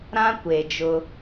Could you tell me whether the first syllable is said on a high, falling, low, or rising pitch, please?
high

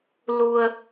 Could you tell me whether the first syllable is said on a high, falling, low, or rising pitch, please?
low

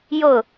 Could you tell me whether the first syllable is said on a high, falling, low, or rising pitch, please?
falling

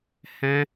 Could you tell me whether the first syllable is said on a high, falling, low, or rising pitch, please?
high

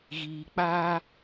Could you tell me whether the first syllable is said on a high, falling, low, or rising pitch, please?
low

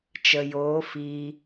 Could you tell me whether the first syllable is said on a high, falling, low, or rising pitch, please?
low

